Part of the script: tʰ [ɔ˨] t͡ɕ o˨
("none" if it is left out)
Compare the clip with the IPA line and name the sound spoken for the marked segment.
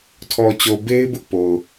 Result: ɔ˨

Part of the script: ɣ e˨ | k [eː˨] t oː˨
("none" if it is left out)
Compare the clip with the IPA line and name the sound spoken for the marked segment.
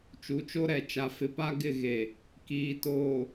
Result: iː˨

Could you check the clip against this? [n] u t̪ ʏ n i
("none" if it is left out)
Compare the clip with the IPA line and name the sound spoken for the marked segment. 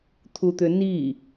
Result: t̪ʰ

